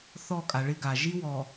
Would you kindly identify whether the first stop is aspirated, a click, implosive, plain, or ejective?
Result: ejective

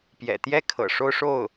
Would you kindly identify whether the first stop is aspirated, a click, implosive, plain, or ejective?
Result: plain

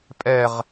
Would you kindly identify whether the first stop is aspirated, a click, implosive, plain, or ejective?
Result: ejective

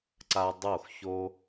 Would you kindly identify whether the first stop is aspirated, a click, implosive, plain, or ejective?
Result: click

